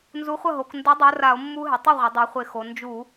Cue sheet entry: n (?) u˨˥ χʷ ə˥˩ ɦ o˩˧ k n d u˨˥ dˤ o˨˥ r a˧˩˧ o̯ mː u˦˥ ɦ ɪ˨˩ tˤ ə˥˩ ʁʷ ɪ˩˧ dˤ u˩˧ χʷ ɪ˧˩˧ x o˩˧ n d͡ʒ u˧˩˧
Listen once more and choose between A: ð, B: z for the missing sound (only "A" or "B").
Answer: B